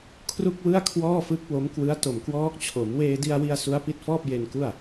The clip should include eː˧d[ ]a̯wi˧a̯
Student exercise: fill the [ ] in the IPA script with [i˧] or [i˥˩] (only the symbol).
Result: i˧